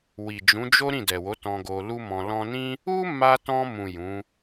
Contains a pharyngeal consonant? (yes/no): no